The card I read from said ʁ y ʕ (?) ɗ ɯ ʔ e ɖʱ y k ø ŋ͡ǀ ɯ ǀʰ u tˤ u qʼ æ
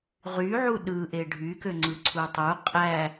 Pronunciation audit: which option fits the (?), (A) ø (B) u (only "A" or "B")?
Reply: B